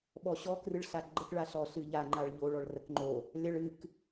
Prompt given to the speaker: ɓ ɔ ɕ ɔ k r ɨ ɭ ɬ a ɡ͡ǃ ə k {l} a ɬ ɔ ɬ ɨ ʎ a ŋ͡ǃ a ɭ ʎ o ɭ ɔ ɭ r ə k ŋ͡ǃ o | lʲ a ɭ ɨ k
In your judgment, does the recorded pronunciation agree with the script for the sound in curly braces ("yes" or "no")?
no